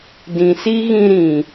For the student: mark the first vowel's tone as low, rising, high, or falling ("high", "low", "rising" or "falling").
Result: low